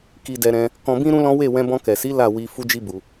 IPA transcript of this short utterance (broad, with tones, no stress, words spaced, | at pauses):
ki˧dɛ˧ ɾɛ̃˧ | kɔ̃˧bĩ˦ ɾũ˦lɔ̃˦ we˦˨ wɛ̃˧bɔ̃˧ kɛ˨si˨˦ la˦˨ wi˧ fu˦d͡ʒi˦bu˧